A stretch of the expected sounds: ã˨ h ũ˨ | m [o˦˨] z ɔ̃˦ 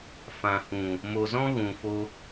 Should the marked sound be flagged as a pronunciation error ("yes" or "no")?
yes